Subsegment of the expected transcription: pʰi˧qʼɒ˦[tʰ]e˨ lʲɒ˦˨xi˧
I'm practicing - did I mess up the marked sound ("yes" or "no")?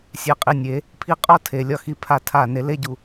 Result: no